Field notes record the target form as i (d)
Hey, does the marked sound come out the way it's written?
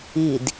yes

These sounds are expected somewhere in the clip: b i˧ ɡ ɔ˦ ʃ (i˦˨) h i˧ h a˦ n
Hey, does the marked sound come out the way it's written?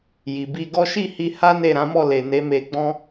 yes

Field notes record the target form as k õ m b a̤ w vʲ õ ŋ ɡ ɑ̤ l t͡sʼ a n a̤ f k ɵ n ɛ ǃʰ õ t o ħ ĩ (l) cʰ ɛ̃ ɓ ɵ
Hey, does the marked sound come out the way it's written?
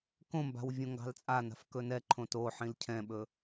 yes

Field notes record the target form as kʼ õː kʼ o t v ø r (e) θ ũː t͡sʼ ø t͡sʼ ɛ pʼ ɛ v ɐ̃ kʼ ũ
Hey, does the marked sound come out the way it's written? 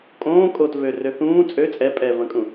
no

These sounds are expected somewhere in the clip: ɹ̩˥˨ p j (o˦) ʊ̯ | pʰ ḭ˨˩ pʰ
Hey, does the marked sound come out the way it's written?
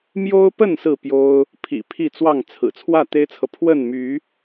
yes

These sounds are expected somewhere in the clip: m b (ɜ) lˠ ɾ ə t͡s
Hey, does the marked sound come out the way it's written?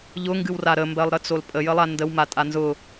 yes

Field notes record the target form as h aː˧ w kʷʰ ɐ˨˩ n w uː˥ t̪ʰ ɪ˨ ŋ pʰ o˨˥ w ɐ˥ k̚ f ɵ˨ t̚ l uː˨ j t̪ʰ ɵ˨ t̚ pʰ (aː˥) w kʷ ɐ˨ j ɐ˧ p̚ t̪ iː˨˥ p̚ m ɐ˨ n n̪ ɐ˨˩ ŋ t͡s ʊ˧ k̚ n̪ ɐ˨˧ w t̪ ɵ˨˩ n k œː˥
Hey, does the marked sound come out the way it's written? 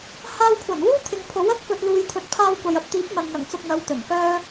no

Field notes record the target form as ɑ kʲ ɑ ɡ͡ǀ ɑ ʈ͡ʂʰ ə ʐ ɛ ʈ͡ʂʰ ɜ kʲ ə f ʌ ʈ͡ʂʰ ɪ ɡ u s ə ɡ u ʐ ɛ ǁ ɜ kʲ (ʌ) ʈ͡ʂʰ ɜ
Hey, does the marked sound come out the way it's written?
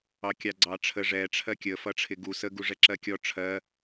no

